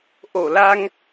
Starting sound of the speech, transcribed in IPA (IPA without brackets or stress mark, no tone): ʔ